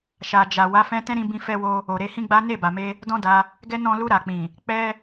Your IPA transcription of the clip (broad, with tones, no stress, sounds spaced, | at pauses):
ʃ a˨ d͡ʒ a˨ w a˨˦ f ɛ̃˦ t ɛ̃˦ ɾ ĩ˧ b ĩ˧ f ɛ˧ w o˧ | o˨ ɾ e˧ h ĩ˦ ɡ͡b a˦ n e˦˨ b a˨ m e˧ | d ɔ̃˦ d a˧ | ɡ ɛ˦ n ɔ̃˧ l u˧ ɾ a˨ k͡p ĩ˨ | k͡p ɛ˦